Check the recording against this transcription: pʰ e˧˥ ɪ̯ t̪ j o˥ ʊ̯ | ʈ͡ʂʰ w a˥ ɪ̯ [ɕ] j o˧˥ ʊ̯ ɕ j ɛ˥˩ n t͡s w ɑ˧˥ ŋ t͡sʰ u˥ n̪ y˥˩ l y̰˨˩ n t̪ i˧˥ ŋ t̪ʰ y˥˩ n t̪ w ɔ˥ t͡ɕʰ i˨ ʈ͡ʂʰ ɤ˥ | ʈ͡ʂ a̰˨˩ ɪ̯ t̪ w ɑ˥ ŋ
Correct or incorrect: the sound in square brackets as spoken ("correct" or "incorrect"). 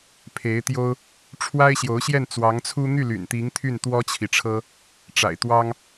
correct